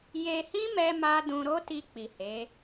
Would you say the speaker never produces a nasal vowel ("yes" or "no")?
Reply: no